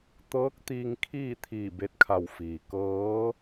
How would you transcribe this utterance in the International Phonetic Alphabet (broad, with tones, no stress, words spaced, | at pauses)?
t̪ɤː˧˥k̚t̪iː˧ŋ kʰiː˥˨t̪ʰiː˧˩ be˧t̚kʰa˧˩w fiː˩kɤː˧˥